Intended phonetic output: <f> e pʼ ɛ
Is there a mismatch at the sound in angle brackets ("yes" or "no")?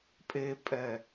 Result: yes